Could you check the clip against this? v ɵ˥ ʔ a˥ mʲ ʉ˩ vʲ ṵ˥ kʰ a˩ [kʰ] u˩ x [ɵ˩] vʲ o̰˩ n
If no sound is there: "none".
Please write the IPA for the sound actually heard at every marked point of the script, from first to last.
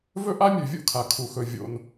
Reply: kʰ, ɵ˩

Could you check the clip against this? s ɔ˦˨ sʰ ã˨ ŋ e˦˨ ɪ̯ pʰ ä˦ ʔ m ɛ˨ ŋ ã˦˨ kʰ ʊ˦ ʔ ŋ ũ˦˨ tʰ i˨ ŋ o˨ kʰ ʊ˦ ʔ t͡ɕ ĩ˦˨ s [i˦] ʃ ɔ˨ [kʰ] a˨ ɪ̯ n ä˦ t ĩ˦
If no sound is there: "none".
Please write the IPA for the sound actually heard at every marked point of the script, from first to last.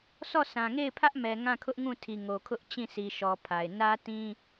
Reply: i˨, pʰ

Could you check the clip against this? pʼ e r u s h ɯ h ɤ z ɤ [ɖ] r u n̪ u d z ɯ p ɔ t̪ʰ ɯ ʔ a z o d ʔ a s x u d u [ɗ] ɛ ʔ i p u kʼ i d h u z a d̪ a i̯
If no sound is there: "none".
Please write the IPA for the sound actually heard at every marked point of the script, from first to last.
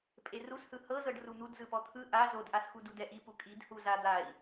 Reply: ɖ, d

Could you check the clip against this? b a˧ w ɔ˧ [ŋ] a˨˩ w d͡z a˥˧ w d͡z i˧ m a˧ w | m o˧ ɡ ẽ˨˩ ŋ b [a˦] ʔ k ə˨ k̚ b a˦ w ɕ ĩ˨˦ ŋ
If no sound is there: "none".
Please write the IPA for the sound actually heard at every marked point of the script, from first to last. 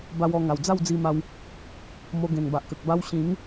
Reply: ŋ, a˨

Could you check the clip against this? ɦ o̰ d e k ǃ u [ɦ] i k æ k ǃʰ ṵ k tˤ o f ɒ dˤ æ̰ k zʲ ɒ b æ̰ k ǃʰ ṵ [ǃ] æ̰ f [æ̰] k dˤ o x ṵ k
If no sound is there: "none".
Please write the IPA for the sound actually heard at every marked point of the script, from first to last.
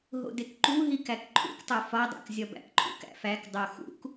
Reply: ɦ, k, æ

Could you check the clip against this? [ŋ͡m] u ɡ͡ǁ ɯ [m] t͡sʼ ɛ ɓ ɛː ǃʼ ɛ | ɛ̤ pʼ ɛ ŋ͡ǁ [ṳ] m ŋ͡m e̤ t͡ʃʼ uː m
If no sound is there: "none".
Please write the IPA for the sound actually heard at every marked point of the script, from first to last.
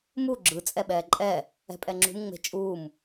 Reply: m, none, ṳ

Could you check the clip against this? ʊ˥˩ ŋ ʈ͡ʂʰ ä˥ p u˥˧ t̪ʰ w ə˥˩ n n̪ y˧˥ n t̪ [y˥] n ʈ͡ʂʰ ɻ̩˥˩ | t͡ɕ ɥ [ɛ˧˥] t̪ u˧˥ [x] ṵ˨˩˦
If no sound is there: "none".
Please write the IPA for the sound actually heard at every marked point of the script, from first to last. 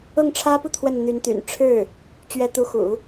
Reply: y̰˨˩, ɛ˧˥, x

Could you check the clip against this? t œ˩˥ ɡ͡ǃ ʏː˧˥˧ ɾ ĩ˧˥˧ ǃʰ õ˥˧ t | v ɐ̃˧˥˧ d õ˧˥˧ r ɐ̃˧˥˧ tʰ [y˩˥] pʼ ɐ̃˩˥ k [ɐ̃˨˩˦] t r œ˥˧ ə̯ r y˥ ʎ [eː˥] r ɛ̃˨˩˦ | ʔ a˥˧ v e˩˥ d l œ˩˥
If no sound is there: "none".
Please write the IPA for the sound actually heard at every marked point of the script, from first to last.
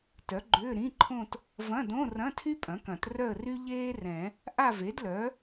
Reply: y˥, ɐ̃˨˩˦, eː˥

